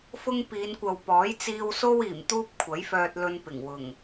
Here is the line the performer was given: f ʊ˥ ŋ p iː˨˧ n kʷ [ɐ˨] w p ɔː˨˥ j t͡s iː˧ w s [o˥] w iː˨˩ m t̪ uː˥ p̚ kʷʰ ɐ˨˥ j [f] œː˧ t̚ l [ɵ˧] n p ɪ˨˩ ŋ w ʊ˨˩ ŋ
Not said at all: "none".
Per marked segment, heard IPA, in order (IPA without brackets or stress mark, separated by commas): ɐ˨, o˥, f, ɵ˧